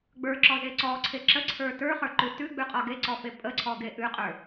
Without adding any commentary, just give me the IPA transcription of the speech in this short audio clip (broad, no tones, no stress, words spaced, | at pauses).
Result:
ɡ͡bə˞ǁɔze ǀɔǀʰe ǁəǀʰə˞ tə˞χə˞ǃʉ tʉɡ͡bʉqʼɒ ɡeǀɔfe pʼəǀʰɔɡe ʔʉqʼə˞